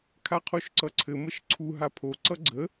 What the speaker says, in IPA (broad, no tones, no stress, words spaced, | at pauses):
kʰaqʰoʃǀʌǀʰɘ məʃǀʰu ɦapʰo ǀʌɡ͡ǀə